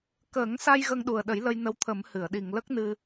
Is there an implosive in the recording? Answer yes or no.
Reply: yes